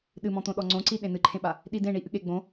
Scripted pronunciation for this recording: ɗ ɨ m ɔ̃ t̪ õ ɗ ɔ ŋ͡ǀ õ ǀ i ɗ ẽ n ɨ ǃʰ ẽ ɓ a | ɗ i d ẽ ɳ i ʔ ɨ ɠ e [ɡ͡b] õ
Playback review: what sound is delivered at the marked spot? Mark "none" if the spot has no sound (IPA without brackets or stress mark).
ɡ͡b